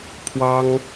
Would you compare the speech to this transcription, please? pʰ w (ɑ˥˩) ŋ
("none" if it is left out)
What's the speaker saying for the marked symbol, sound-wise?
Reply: ɑ˥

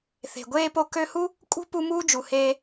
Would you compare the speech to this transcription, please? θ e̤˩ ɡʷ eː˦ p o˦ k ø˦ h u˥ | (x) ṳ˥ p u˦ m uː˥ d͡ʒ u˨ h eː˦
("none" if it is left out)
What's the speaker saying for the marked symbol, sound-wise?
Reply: kʼ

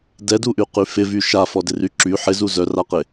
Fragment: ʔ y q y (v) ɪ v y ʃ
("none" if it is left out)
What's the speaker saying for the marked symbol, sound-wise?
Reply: f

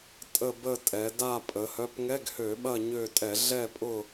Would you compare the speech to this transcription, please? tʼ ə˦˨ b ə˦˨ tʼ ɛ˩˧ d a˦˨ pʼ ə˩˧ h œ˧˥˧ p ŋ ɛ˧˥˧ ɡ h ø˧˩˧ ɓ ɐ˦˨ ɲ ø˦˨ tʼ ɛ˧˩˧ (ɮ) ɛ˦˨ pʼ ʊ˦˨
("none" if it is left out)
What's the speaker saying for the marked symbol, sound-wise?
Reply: ɮ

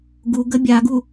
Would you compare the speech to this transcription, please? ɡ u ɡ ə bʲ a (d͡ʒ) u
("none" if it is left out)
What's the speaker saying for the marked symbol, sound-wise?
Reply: ɡ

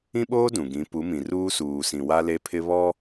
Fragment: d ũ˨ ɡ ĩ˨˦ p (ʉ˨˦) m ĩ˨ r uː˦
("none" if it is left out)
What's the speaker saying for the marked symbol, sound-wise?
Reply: u˨˦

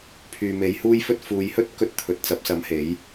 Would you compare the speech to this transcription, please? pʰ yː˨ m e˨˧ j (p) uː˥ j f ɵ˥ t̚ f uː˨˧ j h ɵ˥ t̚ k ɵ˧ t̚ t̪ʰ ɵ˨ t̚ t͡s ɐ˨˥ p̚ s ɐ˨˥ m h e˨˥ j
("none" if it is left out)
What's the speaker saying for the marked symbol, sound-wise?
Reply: h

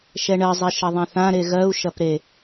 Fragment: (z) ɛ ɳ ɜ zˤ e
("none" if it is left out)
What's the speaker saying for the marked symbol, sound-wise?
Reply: ʃ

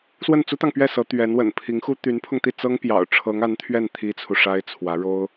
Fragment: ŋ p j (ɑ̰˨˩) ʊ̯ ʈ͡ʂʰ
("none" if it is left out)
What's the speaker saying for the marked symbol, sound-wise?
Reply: ɑ̰˨˩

